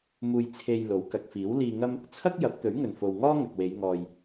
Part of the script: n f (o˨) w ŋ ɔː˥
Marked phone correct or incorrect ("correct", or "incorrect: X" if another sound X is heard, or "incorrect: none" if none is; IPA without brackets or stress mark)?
correct